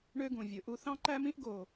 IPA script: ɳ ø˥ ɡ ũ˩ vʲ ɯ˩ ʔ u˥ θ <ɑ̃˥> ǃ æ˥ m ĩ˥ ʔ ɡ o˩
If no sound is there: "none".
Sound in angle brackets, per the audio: ɑ̃˥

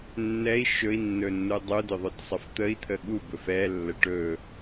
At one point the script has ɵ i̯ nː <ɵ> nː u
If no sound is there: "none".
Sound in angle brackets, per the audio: ɵ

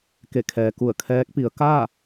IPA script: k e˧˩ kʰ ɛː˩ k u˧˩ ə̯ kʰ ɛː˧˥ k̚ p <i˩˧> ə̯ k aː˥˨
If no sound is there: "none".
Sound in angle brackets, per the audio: i˩˧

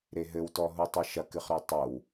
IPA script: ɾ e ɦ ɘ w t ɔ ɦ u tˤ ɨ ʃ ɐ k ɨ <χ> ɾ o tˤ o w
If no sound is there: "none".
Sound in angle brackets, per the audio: χ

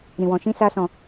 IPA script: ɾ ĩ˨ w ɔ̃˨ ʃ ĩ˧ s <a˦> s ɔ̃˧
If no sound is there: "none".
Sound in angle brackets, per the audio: a˦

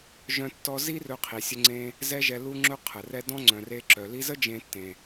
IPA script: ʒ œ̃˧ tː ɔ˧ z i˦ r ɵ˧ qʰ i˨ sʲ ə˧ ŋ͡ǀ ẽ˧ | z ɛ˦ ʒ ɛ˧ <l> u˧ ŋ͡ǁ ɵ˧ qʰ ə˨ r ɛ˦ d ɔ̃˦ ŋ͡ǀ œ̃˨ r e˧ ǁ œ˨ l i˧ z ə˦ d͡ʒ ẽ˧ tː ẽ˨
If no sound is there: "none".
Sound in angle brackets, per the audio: l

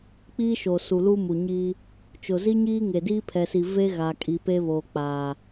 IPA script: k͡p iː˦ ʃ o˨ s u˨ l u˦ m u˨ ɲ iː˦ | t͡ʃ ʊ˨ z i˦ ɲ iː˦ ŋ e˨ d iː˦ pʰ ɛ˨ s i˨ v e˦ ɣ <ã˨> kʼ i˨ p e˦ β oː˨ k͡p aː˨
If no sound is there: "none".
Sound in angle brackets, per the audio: a˨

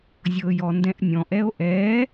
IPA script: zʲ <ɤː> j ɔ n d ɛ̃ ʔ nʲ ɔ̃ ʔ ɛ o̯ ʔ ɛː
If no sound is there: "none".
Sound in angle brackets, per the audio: ɤː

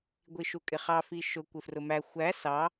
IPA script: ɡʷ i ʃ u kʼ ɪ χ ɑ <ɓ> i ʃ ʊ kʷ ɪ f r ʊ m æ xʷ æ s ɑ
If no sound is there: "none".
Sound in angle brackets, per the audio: f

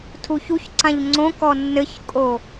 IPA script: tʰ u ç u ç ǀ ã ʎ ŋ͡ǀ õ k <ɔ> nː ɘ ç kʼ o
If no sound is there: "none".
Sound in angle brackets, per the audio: ɔ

